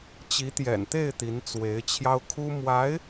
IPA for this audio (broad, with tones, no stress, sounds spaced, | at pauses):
t͡ɕ i˧˥ t̪ j ɛ̰˨˩ n t̪ e˥˩ ɪ̯ t̪ i˧˥ n t͡s w e˧˥ ɪ̯ t͡ɕʰ j ɑ˥ ʊ̯ kʰ u˥ m w a˧˥ ɪ̯